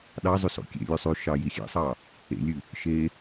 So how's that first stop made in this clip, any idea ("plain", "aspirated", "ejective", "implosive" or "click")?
implosive